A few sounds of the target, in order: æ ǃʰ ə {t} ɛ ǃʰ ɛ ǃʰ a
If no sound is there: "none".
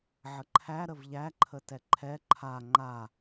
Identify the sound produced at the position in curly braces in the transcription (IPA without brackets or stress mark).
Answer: t